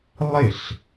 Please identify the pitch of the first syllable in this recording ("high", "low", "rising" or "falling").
falling